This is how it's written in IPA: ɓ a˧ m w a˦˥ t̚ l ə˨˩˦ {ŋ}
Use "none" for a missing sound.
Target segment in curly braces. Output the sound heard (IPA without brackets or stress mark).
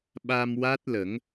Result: ŋ